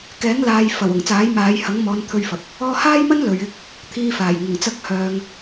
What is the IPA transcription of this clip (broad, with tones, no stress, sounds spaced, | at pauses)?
k ɛː˨˥ ŋ l aː˨ j f ɐ˨˩ w ʊ˨˩ ŋ t͡s aː˨˥ j m aː˨˧ j h ɐ˨˥ ŋ m ɔː˨˧ n t̪ʰ ɵ˧ ɥ f ɐ˨ p̚ | ɔː˧ h aː˥ j m ɐ˥ n l ɵ˨ ɥ ɪ˥ k̚ | t̪ʰ iː˧ f aː˨˩ j ŋ ʊ˨˩ ŋ t͡s ɐ˥ k̚ h œː˧ ŋ